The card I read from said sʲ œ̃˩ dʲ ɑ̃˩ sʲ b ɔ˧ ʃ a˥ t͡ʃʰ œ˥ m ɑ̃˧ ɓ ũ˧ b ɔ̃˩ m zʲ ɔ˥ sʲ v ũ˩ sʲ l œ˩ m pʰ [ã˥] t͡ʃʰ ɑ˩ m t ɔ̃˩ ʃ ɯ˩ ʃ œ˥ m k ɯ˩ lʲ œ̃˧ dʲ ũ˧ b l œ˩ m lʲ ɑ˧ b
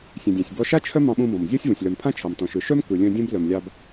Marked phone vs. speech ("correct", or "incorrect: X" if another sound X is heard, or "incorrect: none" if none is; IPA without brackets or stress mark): correct